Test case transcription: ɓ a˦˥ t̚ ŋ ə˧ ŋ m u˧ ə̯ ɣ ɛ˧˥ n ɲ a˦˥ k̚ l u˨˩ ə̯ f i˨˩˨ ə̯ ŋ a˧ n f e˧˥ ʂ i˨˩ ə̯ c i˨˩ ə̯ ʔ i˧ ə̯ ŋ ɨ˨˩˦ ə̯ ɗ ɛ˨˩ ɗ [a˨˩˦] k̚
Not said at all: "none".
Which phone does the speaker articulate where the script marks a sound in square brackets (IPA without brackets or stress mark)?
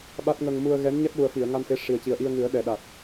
a˨˩